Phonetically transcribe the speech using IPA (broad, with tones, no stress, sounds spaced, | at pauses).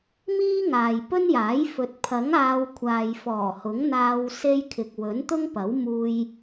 m iː˥ ŋ aː˨ j p ɵ˥ n j aː˨˥ j f ɵ˨ t̚ pʰ ɐ˨˥ ŋ aː˧ w kʷʰ aː˨ j f ɔː˨˩ h ʊ˨˥ ŋ n̪ aː˧ w s e˧ j kʰ ɪ˨ k̚ w ɵ˨˥ n t̪ ʊ˥ ŋ p ɐ˨˥ w m uː˧ j